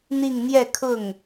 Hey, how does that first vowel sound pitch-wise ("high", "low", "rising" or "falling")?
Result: falling